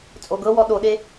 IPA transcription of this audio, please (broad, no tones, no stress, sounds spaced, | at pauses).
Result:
t͡sʼ o ɡ ɤ w ɔ ɗ o ɗ e